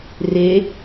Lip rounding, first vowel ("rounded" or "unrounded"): unrounded